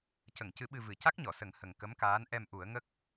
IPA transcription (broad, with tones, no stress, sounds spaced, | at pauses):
c ə˨˩˨ ŋ c ɨ˨˩˦ ɓ ɨ˧ v ɨ˨˩˦ c a˦˥ k̚ ɲ ɔ˨˩˨ s ə˨˩˦ ŋ h ə˨˩ ŋ k ə˧˥ m k aː˧˥ n ʔ ɛ˧ m ʔ u˨˩˦ ə̯ ŋ ə˦˥ k̚